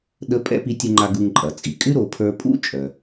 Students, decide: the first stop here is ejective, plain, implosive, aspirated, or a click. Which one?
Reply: implosive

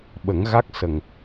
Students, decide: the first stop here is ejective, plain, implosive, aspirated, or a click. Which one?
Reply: implosive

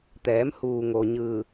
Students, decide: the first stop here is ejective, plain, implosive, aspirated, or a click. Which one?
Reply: plain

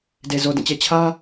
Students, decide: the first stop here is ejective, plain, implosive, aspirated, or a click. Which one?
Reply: plain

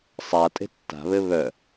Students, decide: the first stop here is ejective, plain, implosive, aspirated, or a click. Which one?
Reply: ejective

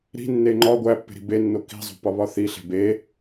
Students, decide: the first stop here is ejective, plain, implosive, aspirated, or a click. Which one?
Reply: click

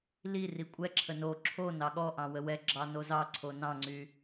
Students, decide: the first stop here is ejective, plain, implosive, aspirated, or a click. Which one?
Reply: ejective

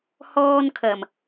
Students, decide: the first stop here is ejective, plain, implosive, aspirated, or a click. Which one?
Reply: aspirated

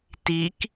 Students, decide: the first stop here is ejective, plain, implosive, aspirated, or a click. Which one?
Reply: plain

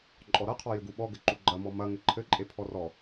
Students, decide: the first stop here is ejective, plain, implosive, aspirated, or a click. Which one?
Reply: click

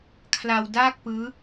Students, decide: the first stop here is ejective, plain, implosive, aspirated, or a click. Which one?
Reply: aspirated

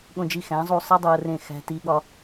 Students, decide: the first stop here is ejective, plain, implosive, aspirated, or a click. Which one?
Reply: implosive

